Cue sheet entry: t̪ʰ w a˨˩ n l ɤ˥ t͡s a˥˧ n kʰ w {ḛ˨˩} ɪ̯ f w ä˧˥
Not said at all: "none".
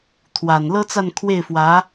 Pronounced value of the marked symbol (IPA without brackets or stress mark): e˥˩